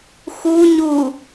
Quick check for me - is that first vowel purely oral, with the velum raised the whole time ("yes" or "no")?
yes